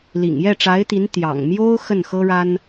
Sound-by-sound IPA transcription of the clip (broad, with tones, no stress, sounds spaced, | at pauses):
l ḭ˨˩ ŋ j ɛ˥˩ ʈ͡ʂ a˧˥ ɪ̯ t̪ i˧˥ n t̪ j ɑ̰˨˩ ŋ m j o˥ ʊ̯ x ə˥˩ n x ɤ˥ ɻ a˥ n